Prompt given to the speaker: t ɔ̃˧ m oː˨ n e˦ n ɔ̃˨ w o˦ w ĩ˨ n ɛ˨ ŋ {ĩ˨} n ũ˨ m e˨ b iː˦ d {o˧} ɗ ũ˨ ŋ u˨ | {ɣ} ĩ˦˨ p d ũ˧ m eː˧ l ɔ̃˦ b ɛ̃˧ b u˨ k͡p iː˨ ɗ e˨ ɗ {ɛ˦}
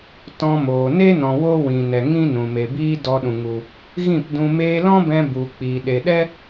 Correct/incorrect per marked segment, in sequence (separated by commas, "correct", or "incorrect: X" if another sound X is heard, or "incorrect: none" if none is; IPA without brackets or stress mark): incorrect: ĩ˦, incorrect: ɔ˧, correct, correct